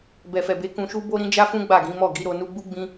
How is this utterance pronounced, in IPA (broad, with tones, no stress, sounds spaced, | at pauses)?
b ɛ˨ f ɛ˨ b e˨˦ k ũ˧ ʃ u˦ b o˦ ɾ ĩ˦ d͡ʒ a˦ f ũ˦ ɡ͡b a˦˨ ɡ ĩ˨˦ m ɔ˦˨ ɡ i˨˦ ɾ o˧ n u˧ ɡ͡b u˦ ɡ͡b ĩ˧